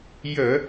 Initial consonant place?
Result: palatal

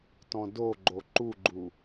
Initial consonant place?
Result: alveolar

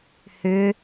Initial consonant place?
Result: glottal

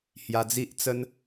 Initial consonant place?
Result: glottal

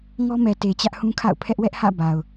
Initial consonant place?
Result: velar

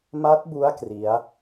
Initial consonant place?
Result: labial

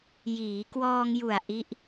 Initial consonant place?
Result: palatal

